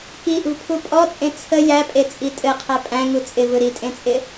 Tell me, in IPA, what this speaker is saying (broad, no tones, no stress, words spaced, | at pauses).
kiʔṳpʰu pʼɔt͡sʼẽ t͡sʰə jæpʼet͡sʼi tʼɘqʰæ pʼæ̃ŋu t͡sʼɪvɯ ɾitʼẽt͡sʼɪ